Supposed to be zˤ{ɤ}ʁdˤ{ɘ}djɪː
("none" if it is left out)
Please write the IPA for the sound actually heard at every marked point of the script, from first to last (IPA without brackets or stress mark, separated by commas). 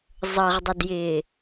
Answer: ɤ, ɘ